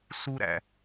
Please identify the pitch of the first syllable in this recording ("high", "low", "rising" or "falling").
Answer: high